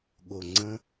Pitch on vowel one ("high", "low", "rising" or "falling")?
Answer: low